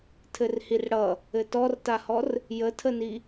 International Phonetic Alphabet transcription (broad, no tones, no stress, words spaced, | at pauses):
tʰɘrhirɽʌ | ɘtɔrtahɔr | jətʰəni